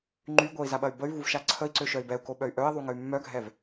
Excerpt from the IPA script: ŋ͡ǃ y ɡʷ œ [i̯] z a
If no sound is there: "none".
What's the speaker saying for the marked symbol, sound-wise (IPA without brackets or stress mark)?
i̯